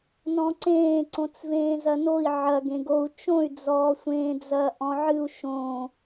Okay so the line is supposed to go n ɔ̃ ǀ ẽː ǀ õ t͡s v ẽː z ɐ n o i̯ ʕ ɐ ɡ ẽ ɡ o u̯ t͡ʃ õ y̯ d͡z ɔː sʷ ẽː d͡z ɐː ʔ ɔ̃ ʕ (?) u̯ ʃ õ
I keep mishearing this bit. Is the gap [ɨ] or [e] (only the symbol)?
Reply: ɨ